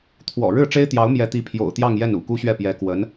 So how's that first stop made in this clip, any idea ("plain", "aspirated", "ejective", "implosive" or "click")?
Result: aspirated